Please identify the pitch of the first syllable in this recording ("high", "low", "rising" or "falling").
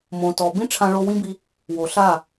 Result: low